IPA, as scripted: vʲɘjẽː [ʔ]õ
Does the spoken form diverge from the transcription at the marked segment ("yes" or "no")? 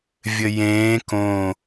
yes